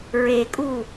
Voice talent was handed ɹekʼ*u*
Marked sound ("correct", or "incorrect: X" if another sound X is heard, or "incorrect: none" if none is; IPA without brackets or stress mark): correct